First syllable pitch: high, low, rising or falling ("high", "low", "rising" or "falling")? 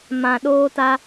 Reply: low